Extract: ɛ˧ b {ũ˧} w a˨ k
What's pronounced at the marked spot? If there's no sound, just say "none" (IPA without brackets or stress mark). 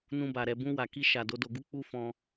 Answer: ũ˧